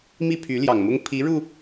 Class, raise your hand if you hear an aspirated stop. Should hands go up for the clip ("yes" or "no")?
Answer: yes